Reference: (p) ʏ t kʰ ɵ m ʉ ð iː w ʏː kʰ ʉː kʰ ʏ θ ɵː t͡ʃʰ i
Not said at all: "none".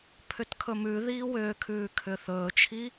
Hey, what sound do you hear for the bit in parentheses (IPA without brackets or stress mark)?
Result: pʰ